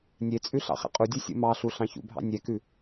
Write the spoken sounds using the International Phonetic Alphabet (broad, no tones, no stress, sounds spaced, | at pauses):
nʲ e t͡sʼ ʉ ɬ ɑ̰ χ ɛ̰ qʼ u dʲ u sʲ ṵ m ɑ ɬ u ɬ ɑ̃ ç ṵ bʱ ɑ̰ nʲ ɛ k ʉ